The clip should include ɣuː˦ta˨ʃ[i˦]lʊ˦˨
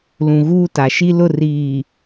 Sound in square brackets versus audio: correct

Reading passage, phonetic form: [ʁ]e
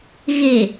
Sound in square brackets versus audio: incorrect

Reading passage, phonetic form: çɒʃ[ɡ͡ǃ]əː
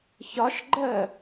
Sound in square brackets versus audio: correct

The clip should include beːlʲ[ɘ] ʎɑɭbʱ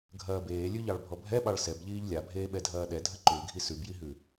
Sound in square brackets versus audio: incorrect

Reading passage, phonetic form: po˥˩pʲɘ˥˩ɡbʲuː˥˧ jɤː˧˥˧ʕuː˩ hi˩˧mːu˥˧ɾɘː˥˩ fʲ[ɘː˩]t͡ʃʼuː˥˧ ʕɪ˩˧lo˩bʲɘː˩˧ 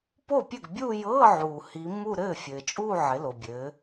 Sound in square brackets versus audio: correct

